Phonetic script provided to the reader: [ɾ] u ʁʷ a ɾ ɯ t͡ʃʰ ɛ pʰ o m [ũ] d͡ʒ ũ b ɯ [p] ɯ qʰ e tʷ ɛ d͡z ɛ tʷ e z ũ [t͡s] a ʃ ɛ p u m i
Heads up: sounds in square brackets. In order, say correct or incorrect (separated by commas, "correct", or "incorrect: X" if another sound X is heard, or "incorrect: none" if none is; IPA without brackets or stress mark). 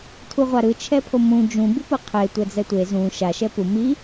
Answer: incorrect: tʰ, correct, correct, incorrect: ʃ